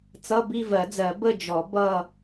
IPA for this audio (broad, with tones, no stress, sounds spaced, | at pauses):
t͡s ʌ˧˥˧ b i˥˧ v ɜ˨˩˦ d͡z ɜ˨˩˦ b ə˥˧ d͡ʒ ɔ˨˩˦ b ʌ˥˧